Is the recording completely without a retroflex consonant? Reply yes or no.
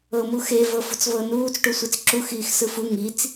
no